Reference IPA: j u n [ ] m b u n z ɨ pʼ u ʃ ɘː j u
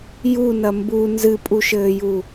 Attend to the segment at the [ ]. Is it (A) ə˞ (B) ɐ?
B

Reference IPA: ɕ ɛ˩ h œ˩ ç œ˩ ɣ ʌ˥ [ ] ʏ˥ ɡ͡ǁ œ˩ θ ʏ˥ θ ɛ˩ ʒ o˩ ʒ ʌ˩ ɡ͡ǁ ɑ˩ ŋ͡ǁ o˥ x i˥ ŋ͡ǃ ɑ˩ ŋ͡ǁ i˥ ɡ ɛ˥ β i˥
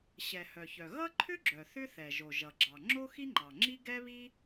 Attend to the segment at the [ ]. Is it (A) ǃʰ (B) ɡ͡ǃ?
A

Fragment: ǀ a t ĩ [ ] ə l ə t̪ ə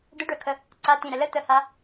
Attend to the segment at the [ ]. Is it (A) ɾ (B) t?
A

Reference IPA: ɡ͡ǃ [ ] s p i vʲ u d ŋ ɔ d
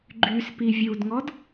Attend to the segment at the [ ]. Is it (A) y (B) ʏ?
A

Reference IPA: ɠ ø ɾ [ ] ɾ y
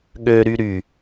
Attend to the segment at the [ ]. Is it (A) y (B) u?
A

